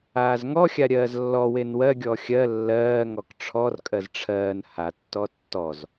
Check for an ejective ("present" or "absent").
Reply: present